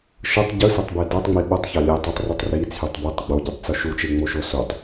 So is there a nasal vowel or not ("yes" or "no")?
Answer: no